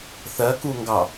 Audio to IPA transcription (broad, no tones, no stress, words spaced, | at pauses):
θɜkuŋɡɑ